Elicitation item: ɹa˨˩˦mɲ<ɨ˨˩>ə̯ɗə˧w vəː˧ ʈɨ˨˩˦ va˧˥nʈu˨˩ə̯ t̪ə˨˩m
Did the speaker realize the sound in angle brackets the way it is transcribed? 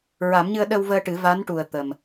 no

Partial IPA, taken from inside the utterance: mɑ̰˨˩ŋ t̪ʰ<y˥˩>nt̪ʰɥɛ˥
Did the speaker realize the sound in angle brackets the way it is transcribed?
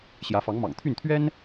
yes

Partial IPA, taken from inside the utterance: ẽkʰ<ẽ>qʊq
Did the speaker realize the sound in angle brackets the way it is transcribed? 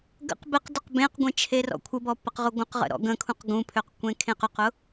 yes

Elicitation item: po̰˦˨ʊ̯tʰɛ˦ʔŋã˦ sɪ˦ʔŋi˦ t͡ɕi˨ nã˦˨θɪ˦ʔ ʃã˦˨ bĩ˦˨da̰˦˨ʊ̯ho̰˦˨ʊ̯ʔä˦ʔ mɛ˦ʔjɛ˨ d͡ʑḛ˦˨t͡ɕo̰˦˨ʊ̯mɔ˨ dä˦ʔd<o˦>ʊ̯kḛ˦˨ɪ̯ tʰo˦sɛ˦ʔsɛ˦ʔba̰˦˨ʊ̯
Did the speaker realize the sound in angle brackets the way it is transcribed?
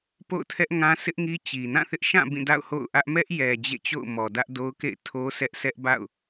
yes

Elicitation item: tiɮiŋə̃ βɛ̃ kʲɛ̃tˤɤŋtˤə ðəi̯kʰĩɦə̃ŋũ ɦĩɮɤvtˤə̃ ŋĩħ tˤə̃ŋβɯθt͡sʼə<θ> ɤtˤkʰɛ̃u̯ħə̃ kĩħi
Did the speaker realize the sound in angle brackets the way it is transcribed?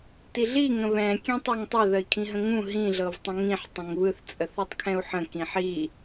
yes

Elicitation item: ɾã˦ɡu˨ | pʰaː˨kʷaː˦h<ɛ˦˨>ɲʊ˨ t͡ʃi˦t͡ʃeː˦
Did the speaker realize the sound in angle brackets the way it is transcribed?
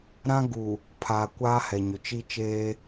no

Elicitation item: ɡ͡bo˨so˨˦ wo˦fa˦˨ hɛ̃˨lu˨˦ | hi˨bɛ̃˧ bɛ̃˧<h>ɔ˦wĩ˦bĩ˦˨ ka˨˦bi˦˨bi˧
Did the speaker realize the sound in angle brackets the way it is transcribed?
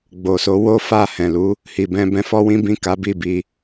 no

